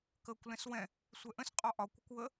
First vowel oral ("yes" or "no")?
yes